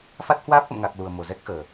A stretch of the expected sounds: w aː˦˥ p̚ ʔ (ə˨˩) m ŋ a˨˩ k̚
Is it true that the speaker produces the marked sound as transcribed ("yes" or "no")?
no